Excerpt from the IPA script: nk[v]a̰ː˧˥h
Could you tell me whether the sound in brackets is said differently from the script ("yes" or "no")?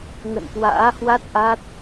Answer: yes